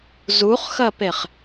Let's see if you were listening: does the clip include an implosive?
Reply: no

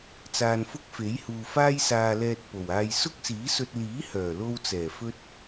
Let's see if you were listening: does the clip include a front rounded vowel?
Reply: yes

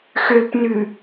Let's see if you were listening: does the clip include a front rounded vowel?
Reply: yes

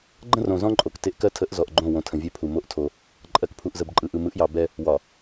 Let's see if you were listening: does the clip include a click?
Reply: yes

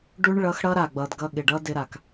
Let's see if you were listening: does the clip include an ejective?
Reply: no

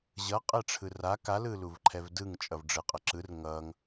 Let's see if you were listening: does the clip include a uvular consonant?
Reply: yes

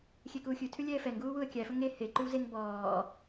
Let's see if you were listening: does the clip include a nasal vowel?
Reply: no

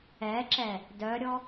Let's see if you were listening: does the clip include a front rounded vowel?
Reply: yes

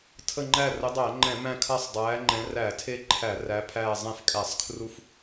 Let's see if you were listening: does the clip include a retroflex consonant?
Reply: no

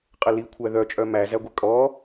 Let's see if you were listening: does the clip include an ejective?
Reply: yes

